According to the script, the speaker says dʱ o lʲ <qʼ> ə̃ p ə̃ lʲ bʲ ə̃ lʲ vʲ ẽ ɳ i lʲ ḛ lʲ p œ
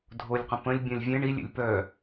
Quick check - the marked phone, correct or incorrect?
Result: incorrect